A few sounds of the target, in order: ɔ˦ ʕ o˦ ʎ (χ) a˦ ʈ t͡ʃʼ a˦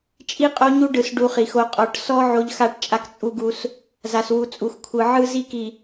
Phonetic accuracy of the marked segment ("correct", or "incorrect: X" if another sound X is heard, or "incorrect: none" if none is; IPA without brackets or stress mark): incorrect: x